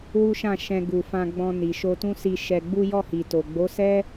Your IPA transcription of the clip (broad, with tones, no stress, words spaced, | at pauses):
wu˦ʃã˦˨ ʃɛ̃˧ ɡu˨fã˧ɡ͡bɔ̃˧ ni˨ʃo˧tũ˦si˧ ʃɛ˧ɡ͡bu˦ jɔ˦˨hi˨to˨ ɡ͡bo˨˦sɛ˦